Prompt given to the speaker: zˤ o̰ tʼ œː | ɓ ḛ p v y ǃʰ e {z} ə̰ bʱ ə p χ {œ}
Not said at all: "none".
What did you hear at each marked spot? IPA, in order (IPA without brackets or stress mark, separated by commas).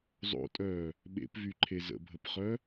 z, œ